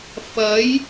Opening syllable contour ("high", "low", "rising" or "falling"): rising